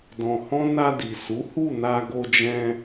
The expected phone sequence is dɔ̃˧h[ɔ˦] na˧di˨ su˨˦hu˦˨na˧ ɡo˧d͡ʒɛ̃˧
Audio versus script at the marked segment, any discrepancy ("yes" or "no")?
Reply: yes